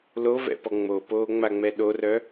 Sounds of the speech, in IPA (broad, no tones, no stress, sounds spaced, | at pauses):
l o v ɛ̰ p ɔ ŋ͡m o p oː ŋ͡m a ŋ͡m ɛ ɗ o r œ